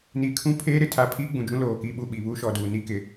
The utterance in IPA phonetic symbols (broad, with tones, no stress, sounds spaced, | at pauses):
n i˨ kʰ ũ˦ pʰ eː˦ ɾ ɪ˨ tʰ a˨ pʰ iː˦ ɡ͡b ũ˨ d͡ʒ ũ˦ l oː˨ k i˦˨ ɓ u˦˨ ɓ i˨ β u˦ ʃ ɔ˨ d uː˨ n i˦ k ɪ˨